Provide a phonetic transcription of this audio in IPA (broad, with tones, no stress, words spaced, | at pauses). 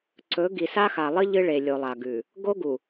ǀɵ˨˦ ɡi˨sa˦xa˨lˠɨ˦ ʎɨ˦ɭe˨lʲo˨lˠa˨ ɡʉ˨ | ɡo˦ɡu˨